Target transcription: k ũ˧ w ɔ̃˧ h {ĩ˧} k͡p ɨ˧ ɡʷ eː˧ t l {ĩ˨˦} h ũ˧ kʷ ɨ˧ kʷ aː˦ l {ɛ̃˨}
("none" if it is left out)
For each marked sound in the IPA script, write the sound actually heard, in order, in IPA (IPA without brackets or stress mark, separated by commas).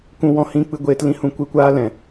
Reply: ĩ˧, ĩ˧, ɛ̃˨